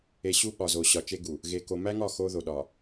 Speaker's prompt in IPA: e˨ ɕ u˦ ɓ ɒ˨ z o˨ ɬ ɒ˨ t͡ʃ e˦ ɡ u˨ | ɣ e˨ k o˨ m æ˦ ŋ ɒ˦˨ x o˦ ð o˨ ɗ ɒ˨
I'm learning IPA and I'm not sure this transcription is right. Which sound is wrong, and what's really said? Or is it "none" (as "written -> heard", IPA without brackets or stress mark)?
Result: ɬ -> ɕ